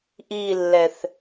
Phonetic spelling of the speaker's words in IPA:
ʔilːɛθ

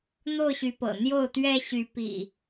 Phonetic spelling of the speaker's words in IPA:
n̪o˥˨ʊ̯ɕy˨˦pɤ̰˨˩ n̪jo˥˨ʊ̯t̪ɥɛ˦ ɕy˨˦pḭ˨˩

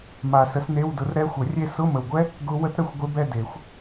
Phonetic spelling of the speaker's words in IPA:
ma˨sə˨˥sn̪e˧˥˧wdʊ˨˥r ɾɛ˦˥xʷə˨˩˦rʲe˥˧ sʊ˧˥˧mə˨wɡʷɛ˦˥ | ɡʊ˦˥ wə˦˥tɾə˧˥˧xʷ ɡʷe˦˥bɛ˥˧ de˨˩˦xʷ

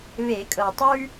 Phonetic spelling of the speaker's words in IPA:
βe˧˩˧kʼɤ˨˩tˤʉ˥

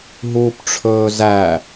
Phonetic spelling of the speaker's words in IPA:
ɦuːpʈ͡ʂʰɵːzæ

